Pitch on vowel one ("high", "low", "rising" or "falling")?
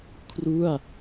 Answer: falling